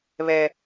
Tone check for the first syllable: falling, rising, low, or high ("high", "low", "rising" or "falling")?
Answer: high